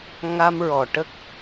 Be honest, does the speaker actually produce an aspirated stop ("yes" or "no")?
no